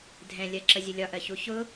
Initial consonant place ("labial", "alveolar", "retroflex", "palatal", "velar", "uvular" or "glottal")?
alveolar